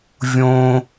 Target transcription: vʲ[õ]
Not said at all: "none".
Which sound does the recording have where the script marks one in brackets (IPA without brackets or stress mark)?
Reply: õ